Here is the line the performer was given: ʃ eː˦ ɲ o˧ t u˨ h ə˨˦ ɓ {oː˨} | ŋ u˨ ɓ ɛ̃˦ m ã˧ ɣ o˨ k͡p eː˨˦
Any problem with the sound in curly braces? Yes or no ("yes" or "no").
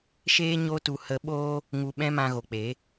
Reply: yes